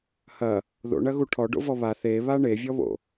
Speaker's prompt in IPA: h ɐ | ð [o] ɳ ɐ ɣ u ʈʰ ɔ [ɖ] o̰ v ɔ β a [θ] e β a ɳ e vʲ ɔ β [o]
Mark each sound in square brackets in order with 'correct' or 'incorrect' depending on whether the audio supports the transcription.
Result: incorrect: o̰, correct, correct, incorrect: o̰

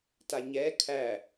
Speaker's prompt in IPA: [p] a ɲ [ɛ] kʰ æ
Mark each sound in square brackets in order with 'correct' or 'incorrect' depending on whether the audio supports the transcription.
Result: incorrect: t, correct

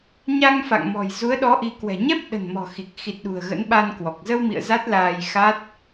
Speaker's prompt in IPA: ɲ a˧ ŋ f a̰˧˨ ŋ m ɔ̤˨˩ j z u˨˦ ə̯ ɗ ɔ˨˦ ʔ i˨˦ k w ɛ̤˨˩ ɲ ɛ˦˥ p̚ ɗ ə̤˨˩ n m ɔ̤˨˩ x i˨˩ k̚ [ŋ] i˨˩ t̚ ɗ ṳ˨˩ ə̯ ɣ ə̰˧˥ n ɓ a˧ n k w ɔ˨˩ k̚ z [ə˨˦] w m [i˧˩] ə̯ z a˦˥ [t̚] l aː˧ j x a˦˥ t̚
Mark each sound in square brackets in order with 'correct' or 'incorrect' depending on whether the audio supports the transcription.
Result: incorrect: x, incorrect: ə˧, incorrect: ḭ˧˨, correct

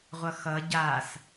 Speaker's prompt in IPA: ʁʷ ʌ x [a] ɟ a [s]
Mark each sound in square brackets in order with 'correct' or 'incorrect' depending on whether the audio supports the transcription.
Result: incorrect: ʌ, correct

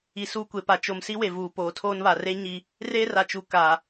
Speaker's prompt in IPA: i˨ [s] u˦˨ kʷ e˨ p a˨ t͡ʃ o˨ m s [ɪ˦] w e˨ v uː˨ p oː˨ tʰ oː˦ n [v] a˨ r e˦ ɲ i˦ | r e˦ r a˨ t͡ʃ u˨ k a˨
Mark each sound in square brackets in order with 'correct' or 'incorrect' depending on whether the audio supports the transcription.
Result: correct, incorrect: i˦, incorrect: β

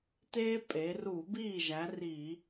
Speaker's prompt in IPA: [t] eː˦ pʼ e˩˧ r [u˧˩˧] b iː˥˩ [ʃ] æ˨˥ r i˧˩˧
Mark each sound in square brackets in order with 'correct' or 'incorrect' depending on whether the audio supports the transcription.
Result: correct, correct, incorrect: ʒ

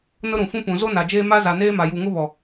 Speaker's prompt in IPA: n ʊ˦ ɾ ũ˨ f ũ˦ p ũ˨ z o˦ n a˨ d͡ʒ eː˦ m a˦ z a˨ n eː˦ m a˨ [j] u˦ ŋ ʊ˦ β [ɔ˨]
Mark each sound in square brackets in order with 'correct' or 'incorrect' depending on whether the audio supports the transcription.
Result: correct, correct

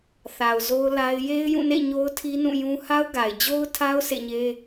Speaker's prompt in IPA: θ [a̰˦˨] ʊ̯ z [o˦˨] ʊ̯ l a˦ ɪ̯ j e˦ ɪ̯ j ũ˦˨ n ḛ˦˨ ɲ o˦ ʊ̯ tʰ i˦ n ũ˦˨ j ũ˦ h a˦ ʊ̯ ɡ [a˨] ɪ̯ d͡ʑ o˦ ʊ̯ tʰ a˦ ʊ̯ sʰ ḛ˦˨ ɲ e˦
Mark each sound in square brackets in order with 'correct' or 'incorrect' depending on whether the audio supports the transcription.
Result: incorrect: a˨, incorrect: o˦, correct

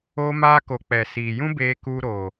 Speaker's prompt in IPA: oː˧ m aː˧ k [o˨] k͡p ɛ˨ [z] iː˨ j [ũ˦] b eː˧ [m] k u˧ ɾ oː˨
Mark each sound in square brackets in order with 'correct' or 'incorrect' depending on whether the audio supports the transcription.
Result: correct, incorrect: s, correct, incorrect: none

